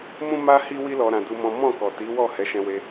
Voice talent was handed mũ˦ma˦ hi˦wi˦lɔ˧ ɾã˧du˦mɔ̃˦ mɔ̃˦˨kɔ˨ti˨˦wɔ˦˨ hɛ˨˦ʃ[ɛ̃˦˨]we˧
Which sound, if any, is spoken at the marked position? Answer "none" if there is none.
ɛ̃˧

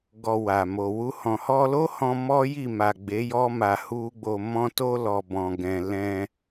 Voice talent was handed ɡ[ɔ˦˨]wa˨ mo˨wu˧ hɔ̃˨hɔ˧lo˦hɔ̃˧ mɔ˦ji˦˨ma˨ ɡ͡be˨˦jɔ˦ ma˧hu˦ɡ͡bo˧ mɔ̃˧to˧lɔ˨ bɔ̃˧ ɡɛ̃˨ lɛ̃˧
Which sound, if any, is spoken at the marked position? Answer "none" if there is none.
ɔ˧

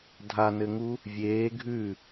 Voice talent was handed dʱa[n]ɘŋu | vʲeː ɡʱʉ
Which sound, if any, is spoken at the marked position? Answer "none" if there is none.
n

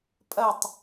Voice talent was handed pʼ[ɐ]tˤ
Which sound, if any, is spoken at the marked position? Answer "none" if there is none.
ɐ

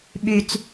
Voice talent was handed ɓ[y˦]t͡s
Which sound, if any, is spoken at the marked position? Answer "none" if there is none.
y˦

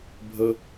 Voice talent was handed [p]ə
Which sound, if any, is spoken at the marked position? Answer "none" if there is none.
bʱ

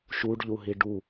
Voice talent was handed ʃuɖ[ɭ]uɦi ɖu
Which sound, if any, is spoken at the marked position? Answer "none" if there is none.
ʎ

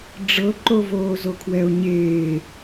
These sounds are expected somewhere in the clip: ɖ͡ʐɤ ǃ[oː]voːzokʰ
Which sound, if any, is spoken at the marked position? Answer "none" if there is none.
o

